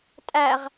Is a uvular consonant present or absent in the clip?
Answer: present